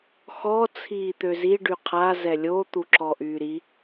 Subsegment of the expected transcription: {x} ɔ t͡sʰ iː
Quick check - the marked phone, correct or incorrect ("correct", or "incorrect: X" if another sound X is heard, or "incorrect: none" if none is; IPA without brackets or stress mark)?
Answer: correct